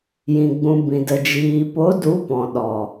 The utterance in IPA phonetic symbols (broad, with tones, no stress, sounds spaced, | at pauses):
j ĩ˨ ɡ͡b ũ˨ b ĩ˨ d ə˨ d͡ʒ iː˨ p o˨˦ d u˨˦ p ɔ̃˨ ɗ ɔ˨